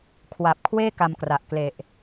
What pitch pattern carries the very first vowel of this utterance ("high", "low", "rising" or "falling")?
low